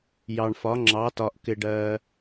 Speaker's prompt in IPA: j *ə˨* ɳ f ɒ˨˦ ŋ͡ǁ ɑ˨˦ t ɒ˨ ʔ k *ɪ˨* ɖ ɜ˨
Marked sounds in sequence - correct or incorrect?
incorrect, correct

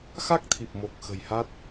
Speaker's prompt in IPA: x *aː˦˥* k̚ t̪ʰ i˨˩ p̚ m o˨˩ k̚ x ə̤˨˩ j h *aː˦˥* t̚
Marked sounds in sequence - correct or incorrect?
incorrect, incorrect

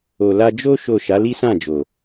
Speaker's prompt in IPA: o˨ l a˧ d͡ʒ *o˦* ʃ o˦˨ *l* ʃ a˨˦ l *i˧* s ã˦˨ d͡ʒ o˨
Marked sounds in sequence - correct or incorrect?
correct, incorrect, incorrect

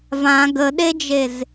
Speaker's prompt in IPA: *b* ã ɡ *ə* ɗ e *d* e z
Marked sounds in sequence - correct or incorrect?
incorrect, correct, incorrect

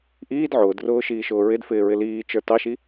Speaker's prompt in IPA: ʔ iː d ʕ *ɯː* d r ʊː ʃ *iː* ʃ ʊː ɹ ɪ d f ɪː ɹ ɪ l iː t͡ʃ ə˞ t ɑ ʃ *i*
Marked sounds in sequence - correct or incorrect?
incorrect, correct, correct

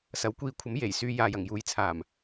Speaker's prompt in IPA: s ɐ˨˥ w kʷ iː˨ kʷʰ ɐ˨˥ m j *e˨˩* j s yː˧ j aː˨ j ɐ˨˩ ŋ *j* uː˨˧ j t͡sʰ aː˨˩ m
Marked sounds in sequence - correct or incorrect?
correct, correct

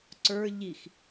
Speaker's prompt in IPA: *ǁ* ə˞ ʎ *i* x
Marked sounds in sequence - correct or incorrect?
incorrect, correct

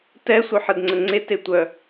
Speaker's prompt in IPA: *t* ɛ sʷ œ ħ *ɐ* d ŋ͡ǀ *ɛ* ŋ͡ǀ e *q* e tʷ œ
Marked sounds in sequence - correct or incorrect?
correct, incorrect, incorrect, incorrect

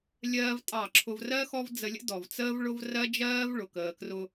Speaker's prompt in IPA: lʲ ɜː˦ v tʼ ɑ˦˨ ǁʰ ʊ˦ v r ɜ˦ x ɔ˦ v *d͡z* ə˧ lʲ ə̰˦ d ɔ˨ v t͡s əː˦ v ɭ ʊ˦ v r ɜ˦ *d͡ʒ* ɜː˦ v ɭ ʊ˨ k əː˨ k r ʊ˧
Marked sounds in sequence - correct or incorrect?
correct, correct

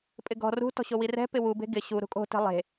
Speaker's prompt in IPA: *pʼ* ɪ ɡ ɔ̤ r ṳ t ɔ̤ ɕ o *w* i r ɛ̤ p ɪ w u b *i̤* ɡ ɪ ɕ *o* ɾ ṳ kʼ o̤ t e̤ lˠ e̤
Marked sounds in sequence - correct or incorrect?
correct, correct, incorrect, incorrect

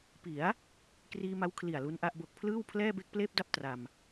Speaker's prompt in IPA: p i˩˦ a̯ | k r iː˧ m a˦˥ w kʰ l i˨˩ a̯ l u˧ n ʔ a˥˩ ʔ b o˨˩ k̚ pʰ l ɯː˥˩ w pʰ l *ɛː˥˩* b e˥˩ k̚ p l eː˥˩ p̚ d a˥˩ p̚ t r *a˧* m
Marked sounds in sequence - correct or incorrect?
correct, correct

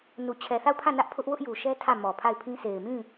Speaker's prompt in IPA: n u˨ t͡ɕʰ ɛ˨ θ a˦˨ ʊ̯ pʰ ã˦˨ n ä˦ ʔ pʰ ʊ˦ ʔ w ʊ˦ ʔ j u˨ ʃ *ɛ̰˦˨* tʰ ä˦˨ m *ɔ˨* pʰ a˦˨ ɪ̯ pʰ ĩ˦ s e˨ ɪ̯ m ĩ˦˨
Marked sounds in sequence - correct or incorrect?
incorrect, correct

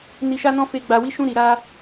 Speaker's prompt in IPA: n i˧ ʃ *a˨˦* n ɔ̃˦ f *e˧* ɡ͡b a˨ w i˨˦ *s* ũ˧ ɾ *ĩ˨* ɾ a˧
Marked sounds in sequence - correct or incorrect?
incorrect, correct, incorrect, incorrect

